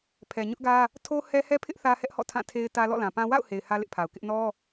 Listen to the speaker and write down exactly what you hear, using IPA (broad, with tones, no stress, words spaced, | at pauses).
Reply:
pʰɛ˨ɲʊ˦ʔɡä˦ | tʰo˦hɛ˦ hɛ˦pʰɪ˦ʔ θä˦hɛ˦ʔhɔ̰˦˨ tʰã˦˨tʰe˦ɪ̯ tä˦ lɔ̰˦˨lã˨pã˦ wa̰˦˨ʊ̯he˨ɪ̯ hä˦lɪ˦ʔpʰa˨ʊ̯kɪ˦ʔ nɔ˦